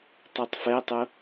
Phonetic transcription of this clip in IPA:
tˤ u tˤ f ɛ tˤ ʊ

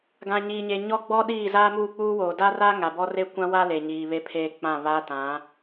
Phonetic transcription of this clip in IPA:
ɡ ã˨ ɲ iː˨ ɲ e˨ ɲ ɔ˦ ɡ͡b ɔ˦ ɗ iː˦˨ z aː˦ m uː˦˨ k͡p uː˦ w oː˨ d a˦ r a˦ ŋ a˨ b ɔ˦ r e˦ kʷ ã˦ w a˦ l e˨ ɲ iː˨ β e˦ pʰ eː˦ k͡p ã˦˨ β aː˦ t ã˨˦

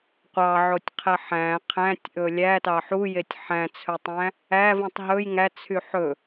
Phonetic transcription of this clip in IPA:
qʷ ɑ ʕ o tʲ qʰ ɛ ħ æ̃ qʰ æ̃ tʲ ʔ ɵ lʲ æ t ɑ ħ u j e tʲ ħ æ̃ t͡sʰ ɵ tˤ æ̃ | æ v ũ tˤ ɦ ɵ j ŋ æ t͡sʰ y ħ ɵ

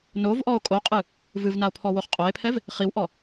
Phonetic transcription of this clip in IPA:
n o v ʔ ɔ o̯ kʼ o qʼ ɨ | v ɨ v n a o̯ pʰ ɔ w o χ qʼ o e̯ pʰ ɛ v | χ i w ʔ ɔ

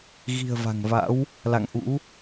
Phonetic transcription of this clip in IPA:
ɣ i̤˨˩ ə̯ v a̤˨˩ ŋ v a̰˧˥ w | l a̰˧˨ ŋ ʔ ṵ˧˥

